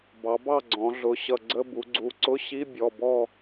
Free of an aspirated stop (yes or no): yes